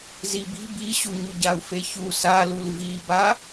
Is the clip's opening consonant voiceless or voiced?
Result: voiced